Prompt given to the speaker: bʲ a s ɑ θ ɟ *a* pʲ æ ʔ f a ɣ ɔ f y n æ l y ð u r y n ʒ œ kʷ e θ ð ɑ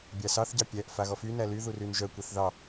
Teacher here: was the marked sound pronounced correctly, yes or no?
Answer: no